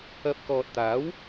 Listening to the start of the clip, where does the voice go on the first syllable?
rising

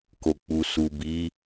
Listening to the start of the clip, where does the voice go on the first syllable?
low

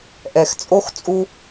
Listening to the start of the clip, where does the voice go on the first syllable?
low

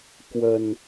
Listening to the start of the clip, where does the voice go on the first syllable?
low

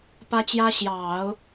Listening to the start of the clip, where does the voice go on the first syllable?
high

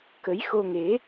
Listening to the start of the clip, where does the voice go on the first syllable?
rising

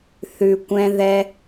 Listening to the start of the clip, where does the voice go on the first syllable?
low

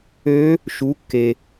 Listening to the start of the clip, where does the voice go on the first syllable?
rising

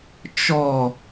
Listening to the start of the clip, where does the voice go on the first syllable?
falling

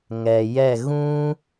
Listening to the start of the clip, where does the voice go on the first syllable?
low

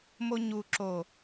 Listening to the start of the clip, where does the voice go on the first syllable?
high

